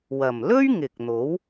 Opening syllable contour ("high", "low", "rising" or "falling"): low